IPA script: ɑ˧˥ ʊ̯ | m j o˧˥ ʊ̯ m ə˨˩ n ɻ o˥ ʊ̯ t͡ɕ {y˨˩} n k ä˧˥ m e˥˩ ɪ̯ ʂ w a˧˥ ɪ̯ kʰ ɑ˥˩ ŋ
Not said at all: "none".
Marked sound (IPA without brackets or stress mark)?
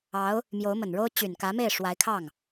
y˨˩